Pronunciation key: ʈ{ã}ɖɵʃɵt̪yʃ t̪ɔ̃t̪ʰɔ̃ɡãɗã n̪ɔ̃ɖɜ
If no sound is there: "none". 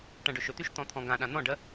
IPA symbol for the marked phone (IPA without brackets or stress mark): ã